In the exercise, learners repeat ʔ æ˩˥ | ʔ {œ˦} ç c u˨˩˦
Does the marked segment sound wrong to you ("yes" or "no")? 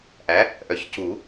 yes